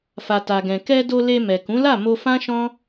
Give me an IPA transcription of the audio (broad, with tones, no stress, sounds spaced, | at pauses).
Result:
f a˨ t a˨ ɡ ɛ̃˨ k ɛ˧ d o˧ l e˧ m ɛ˨ k ũ˨˦ l a˦˨ m o˧ f ã˦ ʃ ɔ̃˦